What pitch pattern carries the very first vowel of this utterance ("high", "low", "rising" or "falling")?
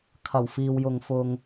low